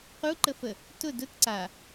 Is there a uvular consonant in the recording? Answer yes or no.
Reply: yes